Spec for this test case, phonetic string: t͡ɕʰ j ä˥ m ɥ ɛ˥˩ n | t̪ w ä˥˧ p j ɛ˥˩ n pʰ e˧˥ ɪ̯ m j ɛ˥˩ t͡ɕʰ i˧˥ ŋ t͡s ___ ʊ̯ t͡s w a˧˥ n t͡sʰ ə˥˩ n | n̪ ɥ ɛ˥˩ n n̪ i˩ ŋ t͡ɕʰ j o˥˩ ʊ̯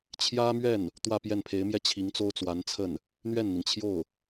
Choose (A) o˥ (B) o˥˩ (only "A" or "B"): A